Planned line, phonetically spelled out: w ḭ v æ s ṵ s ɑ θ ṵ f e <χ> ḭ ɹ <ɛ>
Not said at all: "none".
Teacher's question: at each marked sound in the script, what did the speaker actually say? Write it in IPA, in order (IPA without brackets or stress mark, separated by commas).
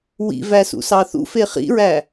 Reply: χ, æ